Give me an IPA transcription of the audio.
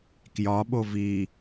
kjɒɓo vi

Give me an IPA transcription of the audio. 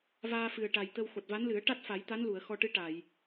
vaː˧fɨ˨˩ə̯ ʈa˨˩jt̪ə˧w xo˨˩t̚va˧˥nlɨ˨˩˦ə̯ ʈa˦˥t̚fa˨˩˦jt̪a˧˥n lu˨˩˨ə̯xɔ˧ʈɨ˧˥ʈa˨˩˨j

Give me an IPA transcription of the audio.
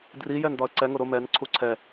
drijɛn dɒə̯ǀɛŋʊ ɾʊ mɛn ǀʰuǀʰɛ

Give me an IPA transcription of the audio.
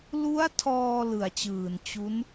lu˦˥a̯tʰɔː˧ lɯ˨˩a̯t͡ɕɯː˨˩n t͡ɕu˦˥n

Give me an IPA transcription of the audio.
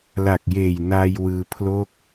la˨˩k̚jeː˨˩j naː˧jwɯː˧pʰlo˥˩k̚

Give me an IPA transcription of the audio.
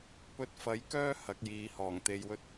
pɵ˧t̚fɐ˨˥jkœː˥ hɐ˨˥k̚jiː˨˧hɔː˨˩ŋ t̪e˧jwɵ˥t̚

